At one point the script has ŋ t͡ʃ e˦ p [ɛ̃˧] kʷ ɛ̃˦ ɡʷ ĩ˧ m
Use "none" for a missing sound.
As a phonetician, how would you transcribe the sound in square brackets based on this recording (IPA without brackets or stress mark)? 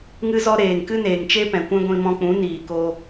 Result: ɛ̃˨